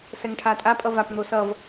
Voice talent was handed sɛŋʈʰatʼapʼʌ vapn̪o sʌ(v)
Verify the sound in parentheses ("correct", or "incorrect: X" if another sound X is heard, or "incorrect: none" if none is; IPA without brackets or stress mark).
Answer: correct